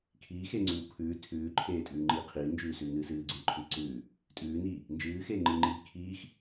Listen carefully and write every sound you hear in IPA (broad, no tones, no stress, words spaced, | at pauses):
kʰiːxeːŋ͡ǀʉːw kʰʉː tʰʉːǃʰeːtʼʉːŋ͡ǃiː qʰiːnd͡ʒʉːsʉːnɨː sɨːɡ͡ǀʉːǃʰɨː ǀʉː | tʼʉːniː | nd͡ʒɨːxeːŋ͡ǃɨːŋ͡ǃiː kʰiːx